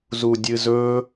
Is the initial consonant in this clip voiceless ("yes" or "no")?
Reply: no